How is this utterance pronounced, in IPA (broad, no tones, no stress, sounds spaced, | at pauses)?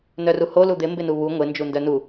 n œ r u h o l u d̪ ɪ m b ɪ n u β u ŋʷ ɪ n d͡ʒ u n d œ n u